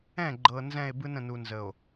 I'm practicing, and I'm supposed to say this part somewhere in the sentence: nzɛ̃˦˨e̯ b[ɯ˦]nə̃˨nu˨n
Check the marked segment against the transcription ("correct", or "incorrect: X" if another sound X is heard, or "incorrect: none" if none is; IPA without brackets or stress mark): correct